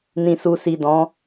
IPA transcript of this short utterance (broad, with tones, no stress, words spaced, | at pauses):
nĩ˨su˨si˨ dɔ̃˨˦